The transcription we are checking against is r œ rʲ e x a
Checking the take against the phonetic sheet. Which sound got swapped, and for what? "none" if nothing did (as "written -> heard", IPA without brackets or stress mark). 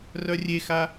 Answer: none